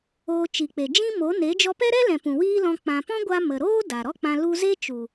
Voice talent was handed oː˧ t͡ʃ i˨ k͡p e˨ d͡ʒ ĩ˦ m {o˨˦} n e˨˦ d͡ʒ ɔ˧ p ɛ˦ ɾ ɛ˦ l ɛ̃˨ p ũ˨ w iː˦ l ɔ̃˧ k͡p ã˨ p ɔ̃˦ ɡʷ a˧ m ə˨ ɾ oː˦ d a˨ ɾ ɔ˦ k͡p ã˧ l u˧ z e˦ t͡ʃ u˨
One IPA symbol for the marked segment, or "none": o˨˦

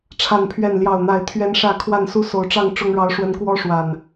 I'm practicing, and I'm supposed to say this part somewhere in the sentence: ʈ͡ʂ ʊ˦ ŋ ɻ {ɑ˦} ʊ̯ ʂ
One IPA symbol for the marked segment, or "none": ɑ˦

